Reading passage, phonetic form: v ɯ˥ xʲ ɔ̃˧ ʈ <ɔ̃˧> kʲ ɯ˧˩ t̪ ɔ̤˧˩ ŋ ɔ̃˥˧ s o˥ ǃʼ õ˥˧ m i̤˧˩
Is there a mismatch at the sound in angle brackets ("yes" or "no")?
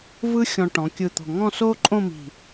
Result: yes